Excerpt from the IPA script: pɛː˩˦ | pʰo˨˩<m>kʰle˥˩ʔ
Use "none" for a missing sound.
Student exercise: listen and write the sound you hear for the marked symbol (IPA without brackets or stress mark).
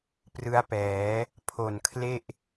n